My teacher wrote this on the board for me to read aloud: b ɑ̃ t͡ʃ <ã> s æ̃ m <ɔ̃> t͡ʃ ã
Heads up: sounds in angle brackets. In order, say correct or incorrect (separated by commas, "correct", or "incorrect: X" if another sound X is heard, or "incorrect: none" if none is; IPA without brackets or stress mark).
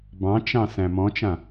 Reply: incorrect: ɑ̃, correct